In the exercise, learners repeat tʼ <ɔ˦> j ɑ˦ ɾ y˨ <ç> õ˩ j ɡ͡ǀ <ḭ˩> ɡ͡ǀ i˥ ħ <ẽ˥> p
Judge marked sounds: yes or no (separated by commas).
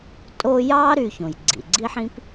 no, yes, yes, no